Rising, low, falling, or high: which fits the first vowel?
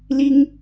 high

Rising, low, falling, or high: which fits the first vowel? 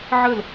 falling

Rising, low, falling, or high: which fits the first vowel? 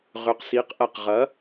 rising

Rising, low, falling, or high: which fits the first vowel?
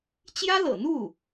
high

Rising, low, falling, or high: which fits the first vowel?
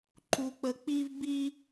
low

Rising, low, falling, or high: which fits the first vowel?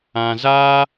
low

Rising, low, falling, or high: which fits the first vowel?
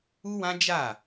high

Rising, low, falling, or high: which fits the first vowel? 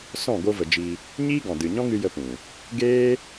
falling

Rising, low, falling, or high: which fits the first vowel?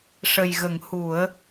low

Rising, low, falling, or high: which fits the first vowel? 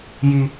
high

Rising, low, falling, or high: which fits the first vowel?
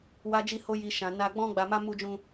high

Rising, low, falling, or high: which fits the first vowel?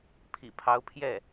low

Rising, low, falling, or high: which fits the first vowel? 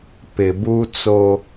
low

